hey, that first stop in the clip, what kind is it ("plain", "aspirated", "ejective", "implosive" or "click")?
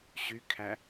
aspirated